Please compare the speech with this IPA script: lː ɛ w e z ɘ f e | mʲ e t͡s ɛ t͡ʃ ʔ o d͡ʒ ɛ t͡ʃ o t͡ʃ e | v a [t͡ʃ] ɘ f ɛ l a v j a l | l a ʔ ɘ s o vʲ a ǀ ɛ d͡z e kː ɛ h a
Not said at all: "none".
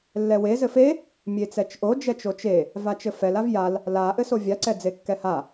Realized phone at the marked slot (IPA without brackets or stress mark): t͡ʃ